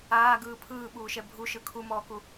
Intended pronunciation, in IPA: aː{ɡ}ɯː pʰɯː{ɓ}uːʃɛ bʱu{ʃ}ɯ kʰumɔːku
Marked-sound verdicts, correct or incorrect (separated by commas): correct, correct, correct